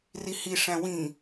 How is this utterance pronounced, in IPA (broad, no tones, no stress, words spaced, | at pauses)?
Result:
rihiʂæ̃ wĩ